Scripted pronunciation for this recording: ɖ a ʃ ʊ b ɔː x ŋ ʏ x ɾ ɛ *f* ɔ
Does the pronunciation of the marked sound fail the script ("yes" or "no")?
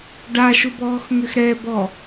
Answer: yes